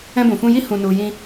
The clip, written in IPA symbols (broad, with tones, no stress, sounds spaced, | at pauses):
ɛ̃˧ b ũ˨ f ũ˧ j i˦ h ũ˧ n u˧ j ĩ˧